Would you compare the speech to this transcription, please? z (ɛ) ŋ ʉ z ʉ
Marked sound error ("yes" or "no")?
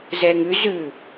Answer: no